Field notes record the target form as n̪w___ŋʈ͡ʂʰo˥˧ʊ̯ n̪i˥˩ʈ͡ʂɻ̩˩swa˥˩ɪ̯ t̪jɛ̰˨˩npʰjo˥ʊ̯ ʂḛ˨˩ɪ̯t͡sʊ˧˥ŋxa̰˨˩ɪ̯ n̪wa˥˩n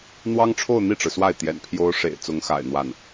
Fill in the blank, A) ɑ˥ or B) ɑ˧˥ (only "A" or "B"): A